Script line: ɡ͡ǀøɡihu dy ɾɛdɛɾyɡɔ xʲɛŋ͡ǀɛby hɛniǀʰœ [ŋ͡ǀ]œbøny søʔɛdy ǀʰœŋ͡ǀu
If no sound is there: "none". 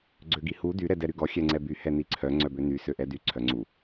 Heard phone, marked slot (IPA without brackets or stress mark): ŋ͡ǀ